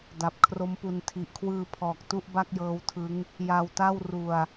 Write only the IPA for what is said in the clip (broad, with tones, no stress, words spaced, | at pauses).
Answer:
da˨˩p̚kʰro˦˥mpu˧n tʰi˨˩ʔkʰwɯː˧pʰɔː˨˩k̚ tu˥˩ʔba˥˩k̚jɤː˦˥wtʰɯ˦˥ŋ | ja˧wta˥˩w ru˧a̯